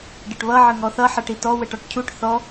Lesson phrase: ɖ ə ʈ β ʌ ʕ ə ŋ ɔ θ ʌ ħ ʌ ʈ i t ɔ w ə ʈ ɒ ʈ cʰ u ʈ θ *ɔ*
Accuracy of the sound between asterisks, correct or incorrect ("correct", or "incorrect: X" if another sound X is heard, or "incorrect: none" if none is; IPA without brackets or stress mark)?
correct